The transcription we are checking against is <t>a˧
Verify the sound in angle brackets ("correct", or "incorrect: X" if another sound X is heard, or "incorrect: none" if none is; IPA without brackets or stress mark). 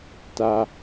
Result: correct